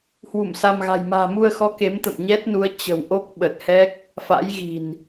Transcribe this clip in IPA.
h w u˧˩ m s a˧ m ɣ a̤˨˩ j m a̤ː˨˩ m u˧ ə̯ x ɔ˨˦ k e˨˦ m t̪ ə̰˧˨ m ɲ ɛ˦˥ t̚ n u˨˦ ə̯ t͡ɕ ə̤˨˩ w ʔ o˦˥ k̚ ɓ ə˨˩ t̚ h ɛ˦˥ k̚ | f a̰˧˥ j ɣ i̤˨˩ n

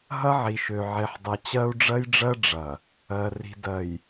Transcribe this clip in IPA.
ɦ ɐ˦ ʕ i˨ ʃ ø˨ ʕ e˨ ħ dˤ ɐ˨ t͡ɕ ɜ˦ u̯ ɖ͡ʐ ɜ˦ j ɖ͡ʐ ɜ˦ ɖ͡ʐ ɐ˨ | ɜ˨ r i̤˨ d ɜ˨ j

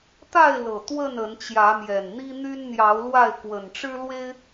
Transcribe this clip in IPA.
t̪ a˥˨ ɪ̯ l ɤ˨˩ t̪ w ə˥˨ n ə˨˦ n t͡ɕ j ä˨˦ m j ɛ˨˩ n n̪ i˦ n̪ y˦ n n̪ j ɑ˨˦ ʊ̯ l w a˥˨ ɪ̯ k w ə˨˩ n ʈ͡ʂ ɻ̩˦ l w e˦ ɪ̯

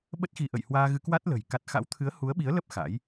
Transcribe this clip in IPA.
ɓ ə˦˥ t̚ x i˧ ʔ ə̰˧˨ j h w aː˧ ɣ ɨ˧ k w a˦˥ t̚ l ə̤˨˩ j k a˦˥ t̚ x a̰˧˥ w t̪ʰ ɨ˨˦ ə̯ h u˨˦ ə̯ ɓ i˨˦ ə̯ l ə˦˥ p̚ x a̰˧˥ j

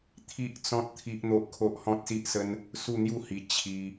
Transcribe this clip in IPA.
t̪ʰ i˦ ʔ t͡s ɔ̃˦ t̚ t̪ʰ i˦ ʔ n̪ o˦ ʔ kʰ o˦ ʔ h ɔ̃˦ t̚ s i˦ ʔ s ə˦ n | s u˥˧ n̪ j u˥˧ h i˧ t͡ɕʰ i˧

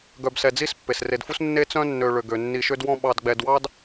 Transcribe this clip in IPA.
ɡ œ˨ b s ɛ˨ d͡z i˥ s pː e˩ s r e˨ d f u˥ s nː e˥ t͡s œ̃˥ nː ø˨ ɭ ø˩ ɡ ø˩ nː i˨ ʃ ø˥ d w ɔ̃˦ ɓ ɑ˨ d ɡ͡b ɛ˨ d w ɑ˥ d

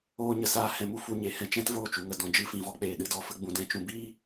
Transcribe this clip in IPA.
oː˧ ɲ ə˨ s aː˧ h ɛ̃˧ m u˦ f u˧ ɲ e˨ h ɛ̃˧ t͡ʃ ɛ̃˦ t v oː˦˨ t͡ʃ u˨ ŋ ə˨ d ɔ̃˨ d͡ʒ ɨ˦ f ĩ˨ v ɔ˦ k͡p eː˨ ɗ ɨ˧ d ɔ˧ f ə˧ ɡ͡b ũ˨ d ɛ̃˧ t͡ʃ ũ˨ b iː˦

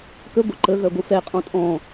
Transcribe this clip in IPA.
k ə ɡʷ ə ǃ ə ɣ œ ɡʷ ɨ f ɛ qʼ ɔ̃ tʼ ɔ̃

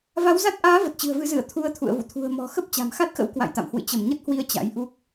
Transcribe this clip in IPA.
v a˨˦ w z a˦˥ t̚ ʔ aː˨˦ v ə˨˩ t̚ t͡ɕ ɨ̤˨˩ ə̯ v ɨ˨˦ z ɨ˧˩ ə̯ t̪ʰ u˧ ə̯ t̪ʰ ṵ˧˨ ə̯ v ṵ˧˨ t̪ʰ ṳ˨˩ ə̯ m ɔ̤˨˩ x ə˦˥ p̚ t͡ɕ a̤˨˩ m x a˦˥ t̚ x ə̰˧˥ w k w a̰˧˨ j t̪ a̰˧˨ m h w ɨ̰˧˨ t͡ɕ ə˧˩ m ɲ ə˦˥ t̚ h w i˧ ə̯ t͡ɕ a̰˧˥ j ʔ u˦˥ k̚

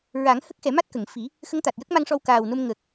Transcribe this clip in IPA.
ɹ a˨˩˦ ŋ h ə˦˥ k̚ x ɛ˨˩˦ m a˦˥ t̚ k ə˨˩˨ ŋ f i˨˩˦ | x ə˧˥ ŋ t̪ a˨˩ t̚ j ə˦˥ k̚ m a˧ ŋ ʂ ɔ˧ w k aː˨˩ w n o˧ m ŋ ə˨˩ k̚

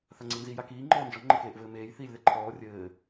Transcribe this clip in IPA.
θ a ŋ͡ǀ i n z i j a k iː ŋ͡ǃ ɔː n d͡ʒ ɔ ŋ͡ǃ ɘ k eː ʔ v ɘː m eː j θ iː lʲ ð ɛ ǃʰ ɔː rʲ ɘː

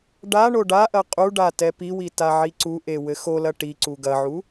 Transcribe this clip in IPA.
ɖ a ɳ o ɖ a ʔ ɐ qʼ u ɖ a t ɛ p i w i t a ʕ i ǀ u ʔ e w ɘ x o l ɐ ʈ i ǀ u ɡ ɐ ʕ u

